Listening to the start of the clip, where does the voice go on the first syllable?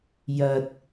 low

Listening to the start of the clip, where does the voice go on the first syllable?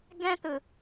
high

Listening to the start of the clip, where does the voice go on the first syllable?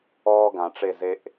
high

